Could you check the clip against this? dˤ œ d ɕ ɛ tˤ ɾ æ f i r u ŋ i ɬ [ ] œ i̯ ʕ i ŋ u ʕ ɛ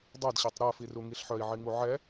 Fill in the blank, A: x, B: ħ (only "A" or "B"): B